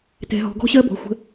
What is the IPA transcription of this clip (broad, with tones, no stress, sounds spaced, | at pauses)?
t ɛ̤˧ ɦ ɔ̤˧ ɡ ɔ̤˥ ɕ ɜ˥ b ɔ̤˩˧˩ xʷ ə̤˧